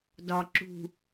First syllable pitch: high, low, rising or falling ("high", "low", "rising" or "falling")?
low